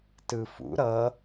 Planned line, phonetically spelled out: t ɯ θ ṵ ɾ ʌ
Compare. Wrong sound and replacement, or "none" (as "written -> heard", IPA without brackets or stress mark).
θ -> f